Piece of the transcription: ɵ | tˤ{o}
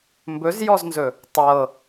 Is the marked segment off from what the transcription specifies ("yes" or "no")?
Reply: yes